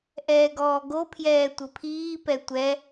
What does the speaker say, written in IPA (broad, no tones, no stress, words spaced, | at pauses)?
ʔɛːɡɔːɡopʰjɛː tʷɘpʰiːpɛ tʷɛ